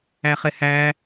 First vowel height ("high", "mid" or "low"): low